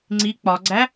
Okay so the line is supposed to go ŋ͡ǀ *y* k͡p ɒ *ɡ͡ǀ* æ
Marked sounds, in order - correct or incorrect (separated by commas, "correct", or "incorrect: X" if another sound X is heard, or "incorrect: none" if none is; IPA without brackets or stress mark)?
incorrect: i, correct